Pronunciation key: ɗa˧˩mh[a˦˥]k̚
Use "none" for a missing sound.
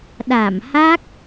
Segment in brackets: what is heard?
a˦˥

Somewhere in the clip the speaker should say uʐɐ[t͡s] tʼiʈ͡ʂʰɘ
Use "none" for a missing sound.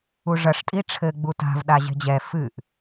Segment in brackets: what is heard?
ʂ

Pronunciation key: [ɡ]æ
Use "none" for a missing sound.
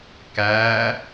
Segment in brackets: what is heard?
k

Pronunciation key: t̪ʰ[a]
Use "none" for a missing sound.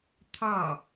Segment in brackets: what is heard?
ɑ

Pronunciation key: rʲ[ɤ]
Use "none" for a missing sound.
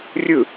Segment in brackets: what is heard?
ɯ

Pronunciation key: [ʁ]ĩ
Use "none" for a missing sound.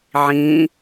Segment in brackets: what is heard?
ʕ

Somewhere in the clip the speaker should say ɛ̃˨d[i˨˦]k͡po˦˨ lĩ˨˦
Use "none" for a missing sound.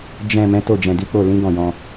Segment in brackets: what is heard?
i˨˦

